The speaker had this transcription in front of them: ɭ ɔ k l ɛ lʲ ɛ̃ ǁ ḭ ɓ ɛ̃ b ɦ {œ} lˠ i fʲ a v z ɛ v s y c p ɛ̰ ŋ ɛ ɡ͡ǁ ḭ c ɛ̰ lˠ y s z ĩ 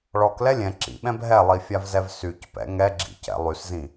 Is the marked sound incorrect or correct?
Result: incorrect: ɛ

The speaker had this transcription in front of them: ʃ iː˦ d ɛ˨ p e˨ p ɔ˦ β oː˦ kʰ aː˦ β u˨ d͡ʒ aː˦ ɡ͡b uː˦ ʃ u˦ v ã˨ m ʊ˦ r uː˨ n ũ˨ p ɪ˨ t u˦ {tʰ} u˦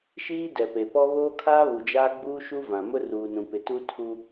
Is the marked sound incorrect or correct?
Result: correct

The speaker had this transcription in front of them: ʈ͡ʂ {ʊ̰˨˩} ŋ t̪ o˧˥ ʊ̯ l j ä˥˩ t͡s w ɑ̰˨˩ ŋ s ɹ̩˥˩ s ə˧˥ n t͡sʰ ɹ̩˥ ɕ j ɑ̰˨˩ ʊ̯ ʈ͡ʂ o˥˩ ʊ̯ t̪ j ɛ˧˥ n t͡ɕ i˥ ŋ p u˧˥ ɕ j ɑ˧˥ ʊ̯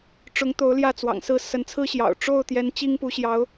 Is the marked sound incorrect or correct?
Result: incorrect: ʊ˧˥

